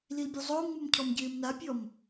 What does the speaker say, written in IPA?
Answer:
lilbʲozˤʊːmŋ͡mum cʰɔmɟɪːmnapʲɔm

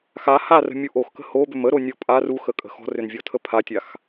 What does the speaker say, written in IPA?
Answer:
xa harə̤mʲu ʔoxkə̤ hobʏm əɾonʲɔ pʼar uxəkʼə̤ xɔ̤rʏnvʲɔtʰə pʰatʲax

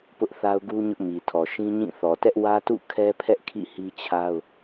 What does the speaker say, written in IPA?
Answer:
pʊ˦ʔθa˦ʊ̯ɡu˦ ɲʊ˦ʔmi˨tʰɔ˨ ʃĩ˦ɲĩ˦˨ θɔ˨tɛ˦ʔ wä˦tṵ˦˨ kʰɛ˦pʰɛ˦ʔ kʰḭ˦˨hi˦t͡ɕʰa˦ʊ̯

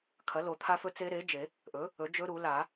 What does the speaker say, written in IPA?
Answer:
kʰɐ˩˥lo˨˩˦t̪ʰa˦˥fɵ˦˥ t͡se˦˥ɾe˩˥d͡ʒe˨˩˦ | ʔɵ˩˥ | ɵ˩˥d͡ʒɵ˦˥ɾu˨˩˦ la˨˩˦

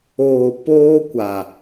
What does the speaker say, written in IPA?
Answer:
oː˨ poː˦kʷa˨

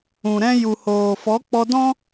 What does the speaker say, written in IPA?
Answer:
ũ˨ɾɛ̃˧ju˨hoː˨ fɔ˨˦k͡pɔ˧dɔ̃˦

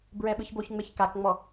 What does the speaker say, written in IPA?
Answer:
bɹɛɓɯçboçŋ͡meç kakŋ͡mɔ

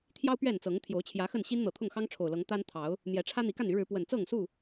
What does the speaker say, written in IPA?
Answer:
t̪ʰjɑ˦ʊ̯ pɥɛ˥˨nt͡sɤ˨˦ŋ t̪ʰjo˨˦ʊ̯t͡ɕʰjä˨˦ xə˥˨nɕi˦nn̪ɤ˨˩ t̪ʰʊ˥˨ŋxɑ˦ŋʈ͡ʂʰo˨˩ʊ̯lɤ˨˦ŋ t̪a˦nt̪ʰɑ˨˦ʊ̯ | n̪jɛ˨˦ʈ͡ʂʰä˦n̪i˨˦ ka˥˨ny˨˦ɻɻ̩˨˦ pwə˨˩nt͡sɤ˥˨ŋsu˥˨

